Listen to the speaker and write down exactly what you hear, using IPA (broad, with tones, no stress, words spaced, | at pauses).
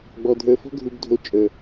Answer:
ɡ͡bɔ˨dʱə˞˨fɔ̤˦ ɡʱu˨bdʱo˨ t͡ʃʼə˞˨